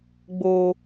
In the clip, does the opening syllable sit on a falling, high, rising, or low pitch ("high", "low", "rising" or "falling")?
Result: high